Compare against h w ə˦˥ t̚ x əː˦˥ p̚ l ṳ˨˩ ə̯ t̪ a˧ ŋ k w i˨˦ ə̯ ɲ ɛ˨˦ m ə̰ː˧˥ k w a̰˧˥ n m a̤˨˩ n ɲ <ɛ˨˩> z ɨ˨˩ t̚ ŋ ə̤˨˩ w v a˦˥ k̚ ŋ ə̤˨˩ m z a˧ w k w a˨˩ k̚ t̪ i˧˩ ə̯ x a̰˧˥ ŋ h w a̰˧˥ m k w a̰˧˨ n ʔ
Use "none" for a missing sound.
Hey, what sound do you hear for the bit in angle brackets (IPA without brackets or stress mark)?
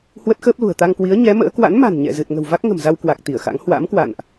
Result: ɛ̰˧˨